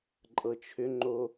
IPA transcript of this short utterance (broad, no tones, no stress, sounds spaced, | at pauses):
ǃʼ ɤ t͡ʃʰ ʏ ŋ͡ǃ o